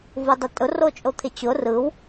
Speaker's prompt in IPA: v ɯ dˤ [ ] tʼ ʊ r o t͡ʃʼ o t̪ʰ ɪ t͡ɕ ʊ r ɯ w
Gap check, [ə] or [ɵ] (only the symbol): ə